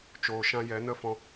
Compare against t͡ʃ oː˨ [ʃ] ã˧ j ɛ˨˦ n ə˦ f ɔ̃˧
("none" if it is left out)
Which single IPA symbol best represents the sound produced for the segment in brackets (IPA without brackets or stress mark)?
ʃ